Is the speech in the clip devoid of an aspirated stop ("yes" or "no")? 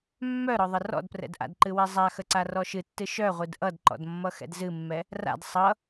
yes